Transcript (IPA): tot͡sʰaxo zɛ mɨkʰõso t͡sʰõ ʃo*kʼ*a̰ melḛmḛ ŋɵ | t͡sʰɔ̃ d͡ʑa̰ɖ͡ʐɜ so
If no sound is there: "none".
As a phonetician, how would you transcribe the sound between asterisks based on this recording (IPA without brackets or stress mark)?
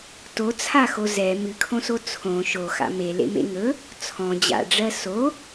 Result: x